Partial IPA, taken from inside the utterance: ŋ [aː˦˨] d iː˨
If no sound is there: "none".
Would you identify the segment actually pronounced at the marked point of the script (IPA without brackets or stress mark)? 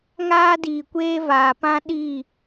aː˦